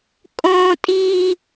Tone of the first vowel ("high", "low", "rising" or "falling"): high